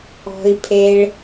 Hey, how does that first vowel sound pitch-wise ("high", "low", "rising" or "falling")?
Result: low